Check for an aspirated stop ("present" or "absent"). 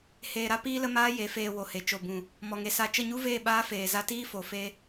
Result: absent